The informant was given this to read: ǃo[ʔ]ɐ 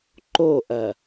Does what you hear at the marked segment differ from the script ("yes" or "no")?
no